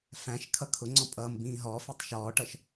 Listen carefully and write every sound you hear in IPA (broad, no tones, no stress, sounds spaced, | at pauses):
f æ̃ ʃ kʰ ʌ kʰ ʊ ŋ͡ǀ ɔ̃ pʼ ʌː m b ĩː ɦ ɔ f i tˤ ʃ ɔː ʈ ʌ ʃ